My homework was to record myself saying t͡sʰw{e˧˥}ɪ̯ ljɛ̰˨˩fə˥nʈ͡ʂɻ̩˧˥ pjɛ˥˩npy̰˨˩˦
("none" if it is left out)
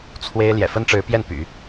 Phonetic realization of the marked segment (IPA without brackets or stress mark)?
e˥